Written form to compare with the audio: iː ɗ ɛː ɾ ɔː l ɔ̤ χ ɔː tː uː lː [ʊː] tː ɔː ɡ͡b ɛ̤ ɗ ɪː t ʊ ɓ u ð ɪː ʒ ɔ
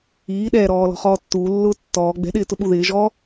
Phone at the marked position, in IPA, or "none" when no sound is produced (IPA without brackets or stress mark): ʊː